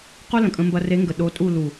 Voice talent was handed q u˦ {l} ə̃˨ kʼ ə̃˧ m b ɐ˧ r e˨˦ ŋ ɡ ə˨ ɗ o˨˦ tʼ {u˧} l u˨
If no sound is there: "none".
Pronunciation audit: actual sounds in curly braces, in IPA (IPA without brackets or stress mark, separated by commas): l, u˦˨